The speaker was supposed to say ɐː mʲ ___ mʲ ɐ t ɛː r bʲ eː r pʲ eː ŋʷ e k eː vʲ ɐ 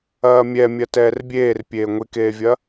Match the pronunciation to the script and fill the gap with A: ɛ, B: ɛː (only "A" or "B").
A